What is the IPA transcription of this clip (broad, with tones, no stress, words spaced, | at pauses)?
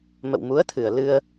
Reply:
mə̰˧˨wmu˨˦ə̯t̪ʰɨ˨˩ə̯ lɨ˧ə̯